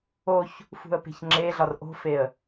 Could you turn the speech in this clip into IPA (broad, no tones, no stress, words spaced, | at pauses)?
oç | fṳə̯pe̤çŋ͡ǁeɮɒr ʔo̤feə̯